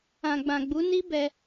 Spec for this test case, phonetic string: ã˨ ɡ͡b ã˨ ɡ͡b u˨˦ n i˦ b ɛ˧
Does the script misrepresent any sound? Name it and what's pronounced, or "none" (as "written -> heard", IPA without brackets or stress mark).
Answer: none